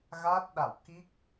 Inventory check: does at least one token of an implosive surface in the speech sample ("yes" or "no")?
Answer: yes